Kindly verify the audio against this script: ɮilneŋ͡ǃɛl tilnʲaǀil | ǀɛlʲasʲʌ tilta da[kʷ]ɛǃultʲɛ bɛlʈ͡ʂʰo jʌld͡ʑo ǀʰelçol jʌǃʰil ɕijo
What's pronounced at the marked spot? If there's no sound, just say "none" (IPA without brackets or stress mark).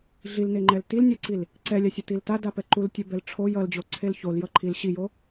p